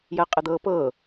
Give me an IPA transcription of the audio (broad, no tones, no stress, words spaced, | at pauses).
jɜqʼəd̪ɤːpɤ